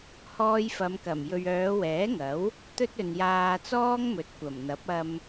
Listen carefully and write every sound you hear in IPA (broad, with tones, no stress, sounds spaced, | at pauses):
h ɔː˧ j f ɐ˨˧ m k ɐ˨˩ m j ɵ˨ ɥ œː˨˧ w ɛː˨˥ ŋ ɐ˨˥ w | t̪ ɵ˥ t̚ ɵ˨ n j aː˧ t͡s ɔː˥ ŋ m ɵ˨˥ t̚ kʷ ɐ˨˩ m n̪ ɐ˨˥ p̚ ɐ˧ m